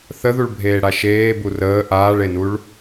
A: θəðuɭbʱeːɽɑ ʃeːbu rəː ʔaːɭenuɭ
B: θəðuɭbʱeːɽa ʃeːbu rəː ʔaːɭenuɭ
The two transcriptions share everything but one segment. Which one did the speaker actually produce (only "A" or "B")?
B